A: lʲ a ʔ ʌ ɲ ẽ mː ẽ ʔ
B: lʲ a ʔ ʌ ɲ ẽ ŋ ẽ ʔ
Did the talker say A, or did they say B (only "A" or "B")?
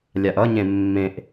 A